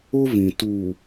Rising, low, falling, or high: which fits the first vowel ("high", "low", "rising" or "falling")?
high